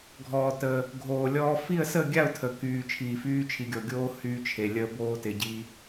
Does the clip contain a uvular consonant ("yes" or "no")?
no